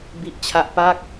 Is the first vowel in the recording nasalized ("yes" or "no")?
no